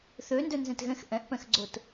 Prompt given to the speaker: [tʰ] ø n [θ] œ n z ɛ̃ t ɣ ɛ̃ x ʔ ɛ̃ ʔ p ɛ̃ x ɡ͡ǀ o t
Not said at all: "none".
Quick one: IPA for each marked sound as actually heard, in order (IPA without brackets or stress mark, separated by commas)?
θ, d